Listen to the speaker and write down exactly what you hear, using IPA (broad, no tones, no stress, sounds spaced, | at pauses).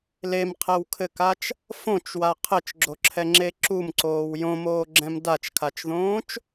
l e m qʰ ɛ w kʰ ɘ k a t͡ʃ | f õ t͡ʃ w a qʰ ɘ t͡ʃ ɡ͡ǁ o ǁʰ ɛ ŋ͡ǁ e ǁ u m ǀ oː w j õ m oː ɡ͡ǁ ɛ̃ m d a t͡ʃ kʰ a t͡ʃ ð õː t͡ʃ